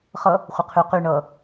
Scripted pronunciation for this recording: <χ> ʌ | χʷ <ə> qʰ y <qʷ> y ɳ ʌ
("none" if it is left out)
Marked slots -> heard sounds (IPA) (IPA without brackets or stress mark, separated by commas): χ, ə, q